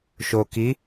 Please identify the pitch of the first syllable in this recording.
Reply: low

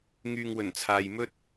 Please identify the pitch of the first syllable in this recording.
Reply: low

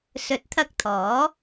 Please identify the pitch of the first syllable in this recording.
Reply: rising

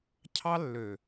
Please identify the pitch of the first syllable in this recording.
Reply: high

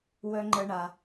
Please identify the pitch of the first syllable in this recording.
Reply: high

